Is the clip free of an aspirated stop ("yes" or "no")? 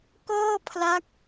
no